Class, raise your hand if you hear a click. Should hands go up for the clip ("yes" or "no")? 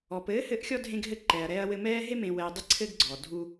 yes